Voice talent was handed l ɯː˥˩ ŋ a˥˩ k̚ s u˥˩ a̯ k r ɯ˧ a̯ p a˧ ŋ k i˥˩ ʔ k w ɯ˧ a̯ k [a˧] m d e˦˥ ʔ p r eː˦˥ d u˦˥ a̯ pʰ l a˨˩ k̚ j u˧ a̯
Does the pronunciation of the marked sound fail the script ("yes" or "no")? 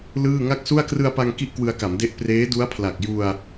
yes